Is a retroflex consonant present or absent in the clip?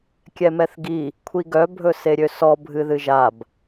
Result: absent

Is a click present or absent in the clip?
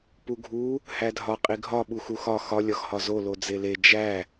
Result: absent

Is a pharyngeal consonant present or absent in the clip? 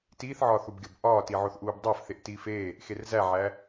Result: present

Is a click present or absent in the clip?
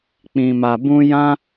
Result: absent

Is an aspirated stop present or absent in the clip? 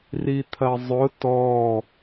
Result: present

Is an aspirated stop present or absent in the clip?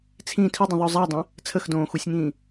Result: present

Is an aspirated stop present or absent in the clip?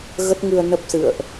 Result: absent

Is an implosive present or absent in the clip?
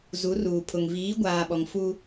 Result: present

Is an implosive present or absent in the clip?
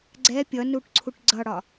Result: absent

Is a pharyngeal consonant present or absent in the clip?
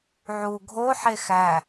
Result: present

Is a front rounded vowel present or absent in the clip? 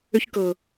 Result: present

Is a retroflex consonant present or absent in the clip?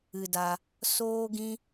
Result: absent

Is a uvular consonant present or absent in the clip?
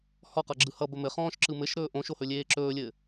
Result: present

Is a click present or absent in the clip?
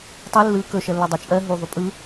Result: absent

